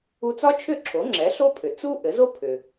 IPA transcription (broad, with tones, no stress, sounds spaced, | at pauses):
u˧ t͡s ɒ˥ t͡ʃʰ ʏ˥˩ ǁʰ o˩˥ ŋ͡ǁ ɛ˩˥ ɬ o˥ pʰ ʏ˩ t͡s u˥ ʔ ɘ˩˥ z o˥ pʰ ʏ˩